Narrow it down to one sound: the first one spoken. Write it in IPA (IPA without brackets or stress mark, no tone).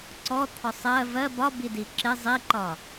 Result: ǀ